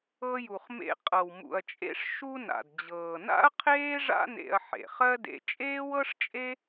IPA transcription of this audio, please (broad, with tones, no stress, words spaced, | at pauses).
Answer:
ɤ˧ju˩χmḛ˧ qʼɤ˩wmṵ˩ɐ̯t͡ʃʼḛ˧ʂ ʃu˧na̰˩d d͡ʑɤː˩na̰˥ɐ̯qʰeː˥ ʐa̰˥nḛ˧ɐ̯ ħḛ˩χɜ˥dḛ˧ t͡ʃʼeː˥wɤ˥ʂt͡ʃʼe˥